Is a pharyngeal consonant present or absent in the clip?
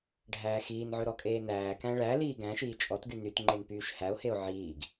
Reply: present